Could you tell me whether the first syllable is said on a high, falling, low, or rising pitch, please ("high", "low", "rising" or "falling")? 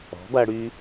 rising